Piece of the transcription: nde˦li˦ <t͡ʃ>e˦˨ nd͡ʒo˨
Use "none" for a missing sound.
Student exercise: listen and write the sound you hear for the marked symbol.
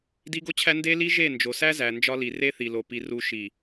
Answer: ʒ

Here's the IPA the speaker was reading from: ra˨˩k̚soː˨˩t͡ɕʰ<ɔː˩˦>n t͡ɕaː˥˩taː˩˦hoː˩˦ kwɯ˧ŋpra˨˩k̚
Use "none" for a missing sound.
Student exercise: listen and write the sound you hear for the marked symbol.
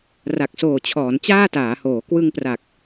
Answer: ɔː˩˦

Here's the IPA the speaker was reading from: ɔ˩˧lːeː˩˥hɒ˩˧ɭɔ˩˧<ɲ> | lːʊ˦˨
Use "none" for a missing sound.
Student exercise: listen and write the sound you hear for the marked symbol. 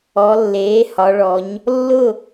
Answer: ɲ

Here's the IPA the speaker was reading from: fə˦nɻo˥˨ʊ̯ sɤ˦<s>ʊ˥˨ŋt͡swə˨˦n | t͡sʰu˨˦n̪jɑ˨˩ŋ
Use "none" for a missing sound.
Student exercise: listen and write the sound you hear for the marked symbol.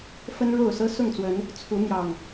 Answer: s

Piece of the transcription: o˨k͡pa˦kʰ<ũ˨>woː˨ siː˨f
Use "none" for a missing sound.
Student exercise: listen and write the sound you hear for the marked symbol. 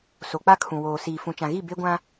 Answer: ũ˨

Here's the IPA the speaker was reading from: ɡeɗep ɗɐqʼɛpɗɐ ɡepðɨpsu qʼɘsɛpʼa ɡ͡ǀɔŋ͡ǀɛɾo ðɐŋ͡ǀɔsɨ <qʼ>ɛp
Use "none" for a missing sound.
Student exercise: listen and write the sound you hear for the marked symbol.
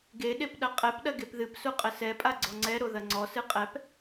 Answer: qʼ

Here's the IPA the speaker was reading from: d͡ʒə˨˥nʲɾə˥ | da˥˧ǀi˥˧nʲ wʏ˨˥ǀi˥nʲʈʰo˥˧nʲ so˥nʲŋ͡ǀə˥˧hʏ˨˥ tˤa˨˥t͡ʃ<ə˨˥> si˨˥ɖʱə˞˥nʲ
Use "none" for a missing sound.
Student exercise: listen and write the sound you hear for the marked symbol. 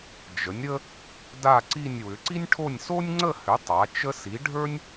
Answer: ə˥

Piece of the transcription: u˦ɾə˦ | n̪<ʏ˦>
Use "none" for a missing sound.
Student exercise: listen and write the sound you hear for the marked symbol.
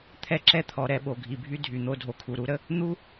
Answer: u˦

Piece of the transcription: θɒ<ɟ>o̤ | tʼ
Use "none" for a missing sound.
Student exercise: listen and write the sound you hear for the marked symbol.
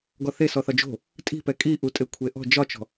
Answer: d͡ʒ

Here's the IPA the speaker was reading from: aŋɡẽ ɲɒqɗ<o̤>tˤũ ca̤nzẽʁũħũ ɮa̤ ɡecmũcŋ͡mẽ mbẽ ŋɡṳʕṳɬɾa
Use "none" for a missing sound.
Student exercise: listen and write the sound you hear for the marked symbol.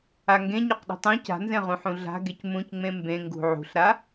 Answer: ṳ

